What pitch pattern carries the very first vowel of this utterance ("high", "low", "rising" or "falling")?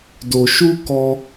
low